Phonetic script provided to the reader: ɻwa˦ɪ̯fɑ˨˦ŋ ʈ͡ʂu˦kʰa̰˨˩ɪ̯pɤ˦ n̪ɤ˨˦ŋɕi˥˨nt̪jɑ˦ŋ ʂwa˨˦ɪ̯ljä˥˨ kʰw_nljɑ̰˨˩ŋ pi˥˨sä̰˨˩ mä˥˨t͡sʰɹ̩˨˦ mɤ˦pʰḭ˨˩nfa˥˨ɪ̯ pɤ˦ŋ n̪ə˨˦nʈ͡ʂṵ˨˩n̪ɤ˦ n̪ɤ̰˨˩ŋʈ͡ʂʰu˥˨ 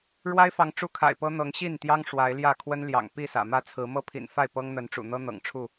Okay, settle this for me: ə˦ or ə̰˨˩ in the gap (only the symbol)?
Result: ə˦